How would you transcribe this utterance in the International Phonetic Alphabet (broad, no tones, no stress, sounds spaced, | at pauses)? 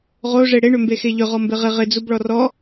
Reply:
ʁ o ʐ e ɽ e ɳ ʏ m b e x e ʎ ʏ ʁ ɔ m b ɪ ʁ ɪ ʁ ɪ d͡z u b ɭ ɔ r ɔ